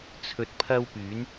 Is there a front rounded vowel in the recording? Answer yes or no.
yes